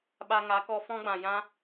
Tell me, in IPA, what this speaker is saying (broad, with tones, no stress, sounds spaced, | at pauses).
ɓ a˧ ŋ a˨˦ k ɔ˧ f ɔ̃˦ ɡ͡b ã˨ j ã˦